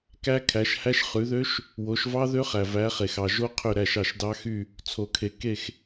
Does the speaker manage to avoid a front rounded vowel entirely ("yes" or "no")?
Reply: no